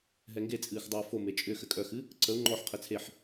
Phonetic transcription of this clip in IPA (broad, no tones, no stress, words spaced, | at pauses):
ɦɛŋɡet͡sʼɨːx dˤɨːfome t͡ʃʼʏxɘ kʼœxɨ | ǀəu̯ ŋ͡ǃɔħqʰɘ t͡sʰeħ